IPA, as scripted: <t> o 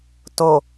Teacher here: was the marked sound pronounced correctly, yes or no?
yes